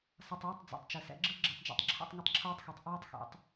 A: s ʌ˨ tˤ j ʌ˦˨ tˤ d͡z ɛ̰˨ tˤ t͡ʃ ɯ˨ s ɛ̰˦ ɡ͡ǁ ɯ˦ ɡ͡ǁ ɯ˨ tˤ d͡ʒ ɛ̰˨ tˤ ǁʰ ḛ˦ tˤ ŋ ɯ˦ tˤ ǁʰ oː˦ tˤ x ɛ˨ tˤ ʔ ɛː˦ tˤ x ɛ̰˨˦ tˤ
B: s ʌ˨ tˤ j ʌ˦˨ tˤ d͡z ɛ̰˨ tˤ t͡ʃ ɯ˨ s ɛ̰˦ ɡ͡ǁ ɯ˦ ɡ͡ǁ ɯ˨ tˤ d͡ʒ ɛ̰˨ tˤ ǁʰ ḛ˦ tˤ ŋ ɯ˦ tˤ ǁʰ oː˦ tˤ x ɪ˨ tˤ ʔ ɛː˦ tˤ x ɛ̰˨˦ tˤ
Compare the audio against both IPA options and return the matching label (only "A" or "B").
A